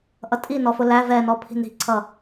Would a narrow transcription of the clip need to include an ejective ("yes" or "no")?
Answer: yes